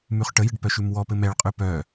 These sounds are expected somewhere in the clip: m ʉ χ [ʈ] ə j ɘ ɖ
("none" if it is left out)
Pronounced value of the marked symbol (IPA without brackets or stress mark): ʈ